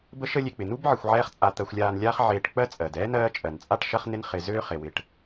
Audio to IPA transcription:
bə˦ʃə˦lʲe˨k͡pɪ˩ nu˥bʕɪ˨xʷ ʕɛː˦χt͡sʼa˨ t̪ɜ˨xʷlʲaː˨nlʲaː˦χ ʕeː˨ʈk͡pɜ˦ t͡sʼɜ˩dɛː˥nɜː˦ t͡ʃʼɜ˩nt͡sʼa˥ʈ ʃɐ˥χnɪ˥n χɪ˨ zøː˦χe˩wɪ˨ʈ

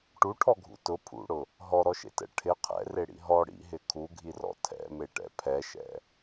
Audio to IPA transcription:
ʈuʈʰɔɡʱṵ tʊ pʰṵɽʊ | ɦɔɾɔʃḛtɛ̰ ʈʰɪ qʰɛ̰reɽḭ ɦɔ ɽḭɦɪ kʰuɡʱirɔ̰ tʰɛ̰meʈɛ̰ pʰɛʃɛ̰

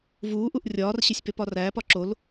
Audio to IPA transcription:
vuːʔuʔ rʲɒːrɕesʲpep ɒræːpɒ ǁol

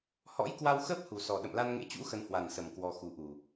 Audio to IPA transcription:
hɔ̰˧˥j kwa˧wxəː˦˥p̚ hu˨˩sɔ˨˩ ɗə̰˧˨mla˧nŋḛ˧˥t͡ɕṵ˧˥ xə˧nhwa˨˩nsə˨˩m kwɔ˧xu˨˦ʔu˨˩

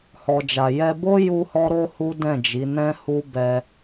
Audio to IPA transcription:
hɔ˨d͡ʒa˨ jɛ˧bo˦ ju˦hɔ˦ɾo˦ hu˦dɛ̃˦˨d͡ʒi˨˦nɛ̃˦ hu˦ bɛ˧

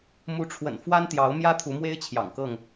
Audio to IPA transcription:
mu˨˦ʈ͡ʂʰwə̰˨˩n fwa˦nt̪jɑ˨˦ʊ̯ mjä˦t̪ʰu˨˦mwe˦ɪ̯ t͡ɕʰjɑ̰˨˩ŋkɤ˥˨ŋ

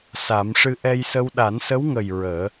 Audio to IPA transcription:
sa˨˩˦mʂɨ˧ ʔɛ˧jsə˧w ɗa˨˩˦nsə˧˥wŋə˨˩j ɹəː˨˩˦

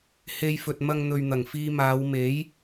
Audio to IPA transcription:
he˧jfɵ˨t̚mɐ˧ŋn̪ɵ˨ɥ n̪ɐ˨˩ŋfiː˧maː˨˧w me˨˥j

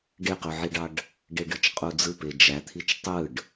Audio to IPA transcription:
ɖeqyʕiɖɑɖ | ɖeɖɯt͡ʃqʼud͡zɯ ped͡ʒæt̪ʰit͡ʃ tˤɯɖ

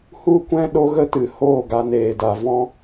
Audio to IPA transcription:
hu˦kʷɛ̃˦ ɗo˦ɣə˦tɨ˨ hoː˦˨ɡa˧neː˨da˨ vɔ̃˦

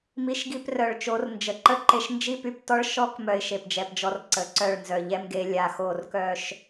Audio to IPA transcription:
mi˧ʃɡi˧prœ˨ɭ t͡ʃo˨˦rnd͡ʒə˨ǃə˦ ǃe˧ʃnd͡ʒi˦py˧ptɔ˦ɭ ʃɔ˦k mœ˧ɪ̯ʃe˨pd͡ʒɛ˨pd͡ʒɔ˧r ǀə˨˦ǀœ˦˨ɭ nzœ˨ʎɛ˦mɡe˨˦ lʲa˨xo˦˨r kœ˦ʃ

